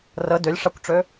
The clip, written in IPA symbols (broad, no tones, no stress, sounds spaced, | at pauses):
r ə d ø lʲ ʂ a kʷ ʈ͡ʂ ø